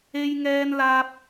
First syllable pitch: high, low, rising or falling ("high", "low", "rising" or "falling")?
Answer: high